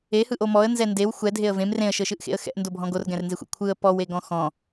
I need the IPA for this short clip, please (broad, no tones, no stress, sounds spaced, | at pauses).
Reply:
e h ɯ ʔ o m ɔ ə̯ n z ɛ n d e w xʷ ɛ dʱ e ə̯ v ẽ m r ẽ ə̯ ʃ ɤ ʃ ɯ ʔ x ḛ ə̯ x ɛ̰ ʔ n d o bʱ ɔ̃ ɡ o r ɡ ɛ̃ r n z e xʷ ḛ kʷʰ ɯ ə̯ p ɔ w e ɡ ɔ̃ x ɔ̃